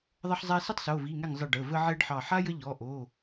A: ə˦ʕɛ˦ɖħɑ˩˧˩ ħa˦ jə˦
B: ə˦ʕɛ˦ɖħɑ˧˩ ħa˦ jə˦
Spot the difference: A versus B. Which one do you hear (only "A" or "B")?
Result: B